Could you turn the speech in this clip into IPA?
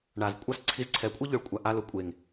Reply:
ɳ a˨ z kʷʼ a˦ s ǀʰ i˧ z ǀʰ ɛ˨˦ kʷʼ e˦ ʎ ʊ˨ ɭ kʷʼ a˨ ʔ a˧ l ʊ˨ kʷʼ e˨ ŋ

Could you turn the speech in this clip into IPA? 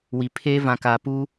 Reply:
w i˨ pʰ eː˦ v ã˨ k aː˨ p uː˦

